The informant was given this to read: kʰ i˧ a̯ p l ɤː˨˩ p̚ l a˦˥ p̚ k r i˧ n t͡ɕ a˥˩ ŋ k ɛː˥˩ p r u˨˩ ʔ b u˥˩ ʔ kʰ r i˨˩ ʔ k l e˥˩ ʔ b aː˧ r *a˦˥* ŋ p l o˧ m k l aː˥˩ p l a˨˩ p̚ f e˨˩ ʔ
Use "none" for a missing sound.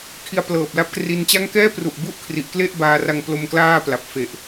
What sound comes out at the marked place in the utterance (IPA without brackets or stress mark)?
a˧